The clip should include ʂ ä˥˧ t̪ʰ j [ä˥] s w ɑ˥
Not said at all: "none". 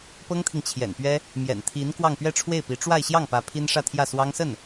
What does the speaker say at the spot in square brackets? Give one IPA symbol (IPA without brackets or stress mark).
ä˥˩